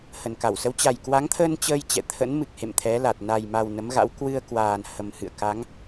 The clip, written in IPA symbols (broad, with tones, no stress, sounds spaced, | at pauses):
h ə˨˩ n k a˧˩ w s ə˨˦ w t͡ɕ a˨˩ j k w a˨˦ ŋ t̪ʰ əː˧ n t͡ɕ əː˧ j t͡ɕ ɛ̰˧˨ t̪ʰ ə̰˧˥ n m ɨ˨˩ k̚ h ḛ˧˨ m t̪ʰ ɛ˨˦ l a˨˩ t̚ n a˨˩ j m a˨˩ w n ə˨˦ m ɣ a̰˧˥ w k w ɨ˧ ə̯ k w aː˨˩ n h ə˨˩ m h ɨ̰˧˨ ə̯ k a˨˦ ŋ